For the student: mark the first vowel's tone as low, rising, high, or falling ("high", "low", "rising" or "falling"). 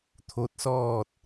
rising